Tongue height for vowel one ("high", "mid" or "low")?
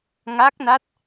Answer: low